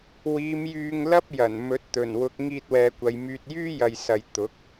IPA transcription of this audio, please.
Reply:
w iː˨˧ m j yː˧ ŋ l ɐ˥ p̚ j ɐ˨˩ n m ɵ˨˥ t̚ t̪ ɵ˨˩ n w ʊ˨˥ k̚ ŋ iː˧ t̚ w ɛː˨ kʷ ɐ˨ j m yː˧ t̚ j yː˥ j ɐ˨ j s ɐ˨ j t̪ ʊ˨˥ k̚

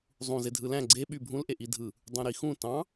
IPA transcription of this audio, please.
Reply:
zˤ ũ z e dʱ ɯ l æ̃ ɡ͡ǀ e ɓ y bʱ ũ l ʔ e ʔ i dʱ ɯ | dˤ ũ ɾ i x ũ t ɑ̃

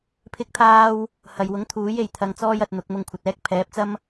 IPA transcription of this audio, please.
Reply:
pʰ ɪ˥ k̚ t̪ʰ aː˥ w | h ɐ˨ j w ʊ˨˥ ŋ t̪ʰ uː˨˥ j e˨ j t̪ʰ ɐ˧ ŋ t͡s ɔː˥ j ɐ˧ t̚ n̪ ʊ˨˥ k̚ m ʊ˧ ŋ kʷʰ ɐ˨ t̚ ɛː˥ k̚ pʰ ɛː˨˥ p̚ t͡s ɐ˥ m

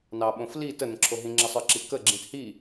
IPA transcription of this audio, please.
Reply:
n ɑ ɓ õ f l i t ə n ə̃ ǁʰ o ɦ ĩ ŋ͡ǁ ə sˤ ə˞ ǁ i k ə ɡ͡ǁ ĩ t h i

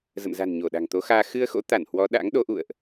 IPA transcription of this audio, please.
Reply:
z ə̰˧˨ m z a̤˨˩ n ɲ o˧˩ ɗ a̤˨˩ ŋ t̪ o˨˦ x aː˧ x ɨ˧ ə̯ x o̰˧˥ t̪ a˧˩ n h w ɔ˨˦ ɗ a̰˧˥ ŋ ɗ o˨˦ ʔ ṵ˧˨ ə̯ ʔ

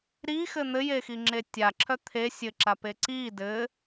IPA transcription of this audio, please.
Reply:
ɾ i x ɘ n̪ ɘ j e x i ŋ͡ǁ e tʲ a ǁʰ œ t̪ʰ e sʲ ɘ ǁ a p e ǀ i d ɘ

